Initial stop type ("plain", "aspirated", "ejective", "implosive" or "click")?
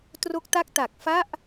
plain